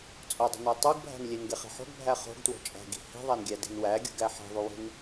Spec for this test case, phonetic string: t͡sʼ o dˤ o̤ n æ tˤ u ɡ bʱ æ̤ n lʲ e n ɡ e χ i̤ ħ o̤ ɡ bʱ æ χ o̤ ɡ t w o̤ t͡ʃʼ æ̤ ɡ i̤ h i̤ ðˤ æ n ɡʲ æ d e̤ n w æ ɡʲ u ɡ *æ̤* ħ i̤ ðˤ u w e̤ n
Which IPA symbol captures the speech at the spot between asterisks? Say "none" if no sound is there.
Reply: æ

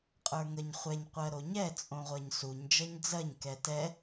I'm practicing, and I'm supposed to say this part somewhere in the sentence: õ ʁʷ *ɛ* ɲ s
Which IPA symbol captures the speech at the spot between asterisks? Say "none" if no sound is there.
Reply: ɜ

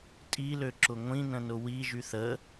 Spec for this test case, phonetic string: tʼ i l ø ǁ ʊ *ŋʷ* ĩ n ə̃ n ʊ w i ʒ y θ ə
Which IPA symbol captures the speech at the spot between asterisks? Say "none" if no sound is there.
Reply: ŋʷ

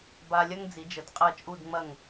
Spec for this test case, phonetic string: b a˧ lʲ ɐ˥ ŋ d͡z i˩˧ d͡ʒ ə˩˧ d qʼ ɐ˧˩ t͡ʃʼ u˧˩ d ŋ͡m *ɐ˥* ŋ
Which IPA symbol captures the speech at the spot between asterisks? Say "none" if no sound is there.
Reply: ɐ˧˩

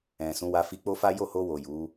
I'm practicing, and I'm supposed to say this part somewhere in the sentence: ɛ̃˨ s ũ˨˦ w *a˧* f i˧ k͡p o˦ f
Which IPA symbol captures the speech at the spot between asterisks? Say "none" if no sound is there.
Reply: a˧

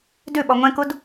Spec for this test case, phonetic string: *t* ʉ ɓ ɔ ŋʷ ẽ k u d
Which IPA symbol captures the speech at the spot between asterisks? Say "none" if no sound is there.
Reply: d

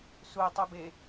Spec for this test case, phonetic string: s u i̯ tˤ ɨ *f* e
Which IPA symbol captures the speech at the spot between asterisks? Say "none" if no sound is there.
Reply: b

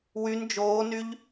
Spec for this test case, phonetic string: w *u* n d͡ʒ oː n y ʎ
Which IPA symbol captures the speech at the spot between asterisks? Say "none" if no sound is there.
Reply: y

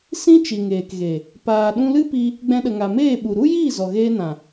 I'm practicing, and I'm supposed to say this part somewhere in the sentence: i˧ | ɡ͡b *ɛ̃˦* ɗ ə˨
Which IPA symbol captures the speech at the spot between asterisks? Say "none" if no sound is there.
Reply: ɛ̃˧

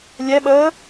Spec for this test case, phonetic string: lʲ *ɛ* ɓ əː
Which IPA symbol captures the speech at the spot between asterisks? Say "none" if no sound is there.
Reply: ɛ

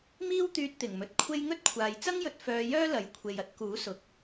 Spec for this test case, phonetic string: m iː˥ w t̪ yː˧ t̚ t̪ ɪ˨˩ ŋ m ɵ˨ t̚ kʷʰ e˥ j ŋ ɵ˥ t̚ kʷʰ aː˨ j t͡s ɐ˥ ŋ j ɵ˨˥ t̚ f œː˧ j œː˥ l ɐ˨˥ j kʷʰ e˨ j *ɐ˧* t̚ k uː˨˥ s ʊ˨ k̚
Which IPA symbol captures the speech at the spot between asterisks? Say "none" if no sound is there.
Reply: ɐ˧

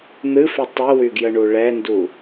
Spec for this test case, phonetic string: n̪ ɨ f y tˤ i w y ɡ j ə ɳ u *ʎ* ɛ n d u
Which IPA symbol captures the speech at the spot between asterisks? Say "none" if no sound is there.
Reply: ɭ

